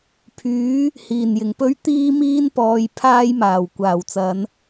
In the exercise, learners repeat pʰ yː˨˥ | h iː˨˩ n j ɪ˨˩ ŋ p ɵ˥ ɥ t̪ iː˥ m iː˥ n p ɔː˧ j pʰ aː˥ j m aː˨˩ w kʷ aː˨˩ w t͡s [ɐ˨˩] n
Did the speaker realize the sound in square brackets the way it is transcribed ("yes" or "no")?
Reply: no